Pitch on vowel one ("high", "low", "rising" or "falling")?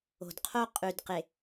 low